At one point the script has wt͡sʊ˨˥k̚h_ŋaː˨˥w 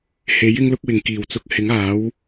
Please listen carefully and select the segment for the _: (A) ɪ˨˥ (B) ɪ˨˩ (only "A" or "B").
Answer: A